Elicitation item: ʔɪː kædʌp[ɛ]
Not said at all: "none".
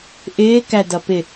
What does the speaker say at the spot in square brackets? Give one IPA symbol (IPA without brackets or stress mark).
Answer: ɪ